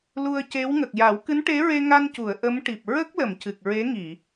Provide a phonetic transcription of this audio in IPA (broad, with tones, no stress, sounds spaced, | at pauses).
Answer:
l u˧ ə̯ c e˧˥ w ŋ ə˨˩ k̚ j a˨˩˦ w k ɨ˧˥ n ʈ e˧˥ ɹ e˧ ŋ a˧ n c u˨˩˨ ə̯ ʔ ə˧˥ m ʈ i˨˩ p̚ ɹ ə˦˥ k̚ l ə˨˩˨ m c ɨ˨˩ k̚ ɹ e˧˥ ŋ i˨˩˨